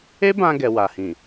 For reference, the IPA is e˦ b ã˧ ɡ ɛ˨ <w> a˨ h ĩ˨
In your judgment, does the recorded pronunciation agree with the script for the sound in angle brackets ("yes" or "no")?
yes